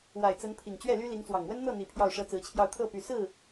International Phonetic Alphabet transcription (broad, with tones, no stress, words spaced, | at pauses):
wa˨˩ɪ̯ t͡sə˧˥npʰi˨˩ŋ t͡ɕɥɛ˥˩ly˥ li˧˥ŋt͡swɑ˨˩ŋ wə˥nn̪ɤ˥˩n̪i˨˩ pʰjɑ˥˩ʊ̯ʂɤ˥t͡sɹ̩˧˥t͡ɕʰjɑ˥˧ʊ̯ t̪ʰɤ˥˩py˨˩ sɹ̩˥˩